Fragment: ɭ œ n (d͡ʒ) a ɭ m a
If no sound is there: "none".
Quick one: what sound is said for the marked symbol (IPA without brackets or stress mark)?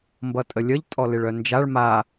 d͡ʒ